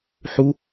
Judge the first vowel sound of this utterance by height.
high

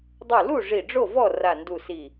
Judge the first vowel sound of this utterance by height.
high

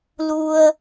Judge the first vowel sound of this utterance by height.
high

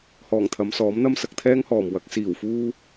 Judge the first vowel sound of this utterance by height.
mid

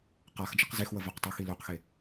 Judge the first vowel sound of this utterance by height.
low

